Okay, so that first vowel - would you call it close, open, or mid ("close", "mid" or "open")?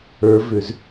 mid